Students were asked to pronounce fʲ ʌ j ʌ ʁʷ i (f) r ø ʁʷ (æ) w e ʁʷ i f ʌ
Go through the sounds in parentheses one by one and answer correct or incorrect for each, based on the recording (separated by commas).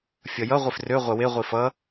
correct, incorrect